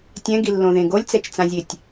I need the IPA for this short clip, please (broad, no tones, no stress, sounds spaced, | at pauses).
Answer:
tʲ ɛ̃ ɡ i lː õ ð ẽ ɡ o lʲ t͡s ɛ t͡ʃ t͡s ã zʲ e tʲ